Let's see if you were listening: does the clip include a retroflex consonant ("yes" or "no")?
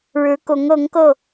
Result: yes